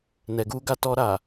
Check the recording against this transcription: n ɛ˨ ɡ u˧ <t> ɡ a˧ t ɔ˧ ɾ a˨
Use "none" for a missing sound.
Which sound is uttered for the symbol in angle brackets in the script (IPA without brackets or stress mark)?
none